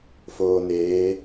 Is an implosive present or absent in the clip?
absent